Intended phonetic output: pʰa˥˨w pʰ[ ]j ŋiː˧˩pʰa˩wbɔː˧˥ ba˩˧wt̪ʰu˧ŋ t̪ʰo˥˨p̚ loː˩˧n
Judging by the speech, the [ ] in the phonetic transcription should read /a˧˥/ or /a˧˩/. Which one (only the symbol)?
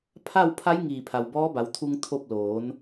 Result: a˧˥